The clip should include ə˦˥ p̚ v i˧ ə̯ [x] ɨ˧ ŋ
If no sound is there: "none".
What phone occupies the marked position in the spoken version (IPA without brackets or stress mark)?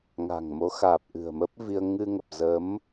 ŋ